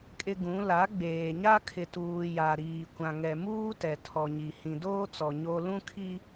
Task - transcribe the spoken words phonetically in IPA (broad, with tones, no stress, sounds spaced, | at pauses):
kʼ ɪ˦ ɡ ũ˨˦ l a˨˦ ɡ͡b eː˨ ɲ a˦ kʰ ɪ˨ t uː˨ j a˨ ɾ iː˨ kʷ ã˨ ŋ ɛ˨ m uː˦ t ɛ˨ tʰ ɔ˨ ɲ i˨ h ĩ˨ d oː˦ t͡s ɔ˨ ɲ o˦ l ũ˦ kʰ i˦